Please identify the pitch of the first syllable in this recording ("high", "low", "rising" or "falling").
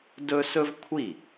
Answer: high